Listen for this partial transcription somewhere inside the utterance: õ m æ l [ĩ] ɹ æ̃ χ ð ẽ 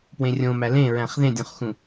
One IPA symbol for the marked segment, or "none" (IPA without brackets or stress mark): ẽ